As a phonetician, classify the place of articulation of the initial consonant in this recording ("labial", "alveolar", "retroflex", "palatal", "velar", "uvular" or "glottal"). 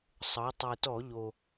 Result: alveolar